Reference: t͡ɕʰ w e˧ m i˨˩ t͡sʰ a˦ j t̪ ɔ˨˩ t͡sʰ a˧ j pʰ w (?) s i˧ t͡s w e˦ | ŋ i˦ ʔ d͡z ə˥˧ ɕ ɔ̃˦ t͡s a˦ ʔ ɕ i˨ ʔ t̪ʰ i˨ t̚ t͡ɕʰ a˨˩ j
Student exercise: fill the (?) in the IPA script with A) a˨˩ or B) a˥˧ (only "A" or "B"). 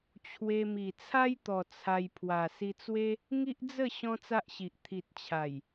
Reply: A